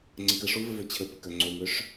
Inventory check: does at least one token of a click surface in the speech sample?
yes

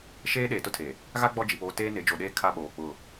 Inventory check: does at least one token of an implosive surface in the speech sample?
yes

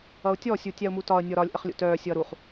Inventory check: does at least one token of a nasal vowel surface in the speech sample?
no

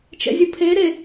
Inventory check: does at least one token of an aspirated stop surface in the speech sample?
yes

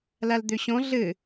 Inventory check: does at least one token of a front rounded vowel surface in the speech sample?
yes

